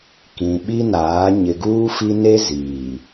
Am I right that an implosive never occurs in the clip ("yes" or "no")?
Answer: no